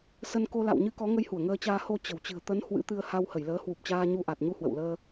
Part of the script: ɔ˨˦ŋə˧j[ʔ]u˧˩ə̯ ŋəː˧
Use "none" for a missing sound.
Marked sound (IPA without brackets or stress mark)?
h